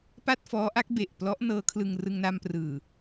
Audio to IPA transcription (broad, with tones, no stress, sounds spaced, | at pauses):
p a˥˩ t̚ f ɔː˦˥ ʔ a˦˥ k̚ b e˨˩ ʔ p l ɔ˦˥ ʔ n ɤː˦˥ kʰ l ɯ˧ ŋ r ɯ˧ ŋ n a˧ m p r ɯː˨˩